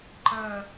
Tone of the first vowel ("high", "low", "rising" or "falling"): falling